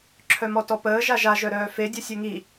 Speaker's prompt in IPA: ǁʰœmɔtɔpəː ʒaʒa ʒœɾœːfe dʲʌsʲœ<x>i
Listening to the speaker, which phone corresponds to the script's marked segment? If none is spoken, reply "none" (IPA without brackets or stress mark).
ŋ